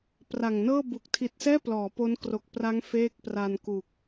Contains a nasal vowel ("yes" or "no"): no